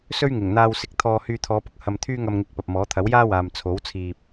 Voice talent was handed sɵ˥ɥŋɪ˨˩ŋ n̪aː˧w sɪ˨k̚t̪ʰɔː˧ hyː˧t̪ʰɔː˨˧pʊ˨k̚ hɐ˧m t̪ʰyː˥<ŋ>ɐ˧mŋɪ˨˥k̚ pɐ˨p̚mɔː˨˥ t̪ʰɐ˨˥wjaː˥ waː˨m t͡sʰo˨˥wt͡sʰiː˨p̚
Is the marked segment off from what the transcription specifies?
no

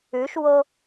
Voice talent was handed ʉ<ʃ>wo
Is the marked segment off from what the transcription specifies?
no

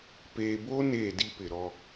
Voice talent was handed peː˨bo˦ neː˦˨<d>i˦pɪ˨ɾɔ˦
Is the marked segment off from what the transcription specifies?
no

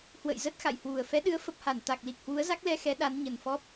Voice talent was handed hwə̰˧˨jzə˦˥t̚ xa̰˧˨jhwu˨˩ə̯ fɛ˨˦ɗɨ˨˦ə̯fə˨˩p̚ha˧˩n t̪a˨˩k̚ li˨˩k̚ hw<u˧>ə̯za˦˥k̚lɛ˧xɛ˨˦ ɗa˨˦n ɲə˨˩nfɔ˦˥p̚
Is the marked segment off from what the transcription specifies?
yes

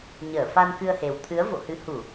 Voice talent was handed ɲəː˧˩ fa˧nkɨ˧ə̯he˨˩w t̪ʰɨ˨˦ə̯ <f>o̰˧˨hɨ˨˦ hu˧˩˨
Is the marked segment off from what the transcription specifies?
yes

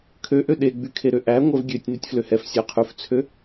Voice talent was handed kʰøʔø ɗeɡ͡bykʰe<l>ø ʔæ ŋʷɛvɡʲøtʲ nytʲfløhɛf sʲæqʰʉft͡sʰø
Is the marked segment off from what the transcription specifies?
yes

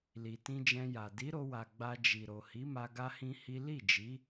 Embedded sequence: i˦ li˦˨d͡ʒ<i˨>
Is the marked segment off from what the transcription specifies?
yes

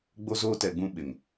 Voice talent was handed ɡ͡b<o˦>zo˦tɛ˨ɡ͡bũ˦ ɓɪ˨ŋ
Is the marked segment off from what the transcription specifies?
no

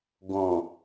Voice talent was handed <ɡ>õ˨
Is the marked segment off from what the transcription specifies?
no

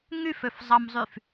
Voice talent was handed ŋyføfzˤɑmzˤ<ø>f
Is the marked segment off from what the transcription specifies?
yes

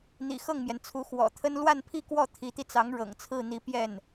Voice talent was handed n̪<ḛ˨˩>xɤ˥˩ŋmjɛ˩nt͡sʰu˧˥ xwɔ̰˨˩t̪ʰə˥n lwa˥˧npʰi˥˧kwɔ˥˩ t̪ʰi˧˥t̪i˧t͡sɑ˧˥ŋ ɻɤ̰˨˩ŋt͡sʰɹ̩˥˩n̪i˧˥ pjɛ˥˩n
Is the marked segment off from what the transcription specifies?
yes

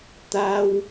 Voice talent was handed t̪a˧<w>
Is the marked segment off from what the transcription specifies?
no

